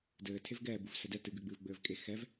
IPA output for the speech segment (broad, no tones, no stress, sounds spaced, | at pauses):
d ɘː tʰ e v ɡ ɛː b u v s ɛ d ɛ t ɨ ɡ ɨː ɡ͡b ɨː v ɡ͡b ɘː v kʼ e x ɛ v